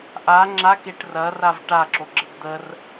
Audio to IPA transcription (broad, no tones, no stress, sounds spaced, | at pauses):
ʔ a ŋ͡ǁ a k e ʈ r ɐ r a v ʈ a ǁ o ɡ͡ǁ ə d d̪ ə r